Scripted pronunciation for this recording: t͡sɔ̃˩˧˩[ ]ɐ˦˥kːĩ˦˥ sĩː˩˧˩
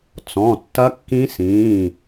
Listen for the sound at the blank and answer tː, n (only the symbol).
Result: tː